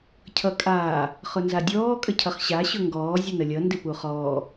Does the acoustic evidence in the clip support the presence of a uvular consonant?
yes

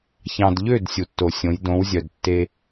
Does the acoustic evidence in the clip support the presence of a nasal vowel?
yes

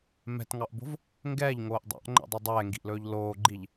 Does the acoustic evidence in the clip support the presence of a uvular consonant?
no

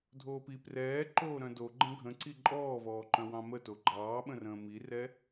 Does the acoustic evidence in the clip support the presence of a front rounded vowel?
yes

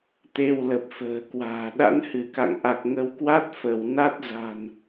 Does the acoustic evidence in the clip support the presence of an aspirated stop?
no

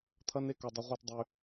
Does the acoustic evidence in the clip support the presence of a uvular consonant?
yes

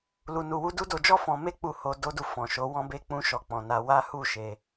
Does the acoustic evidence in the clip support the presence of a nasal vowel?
yes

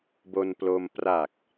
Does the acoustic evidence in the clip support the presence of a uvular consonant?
no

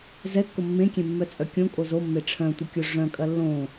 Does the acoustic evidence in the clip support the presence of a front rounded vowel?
yes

